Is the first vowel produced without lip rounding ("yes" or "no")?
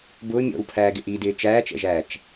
no